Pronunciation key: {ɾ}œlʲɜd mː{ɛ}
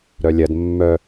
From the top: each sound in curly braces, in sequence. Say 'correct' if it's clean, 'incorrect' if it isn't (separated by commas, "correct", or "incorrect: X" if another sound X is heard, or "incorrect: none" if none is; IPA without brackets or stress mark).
correct, incorrect: œ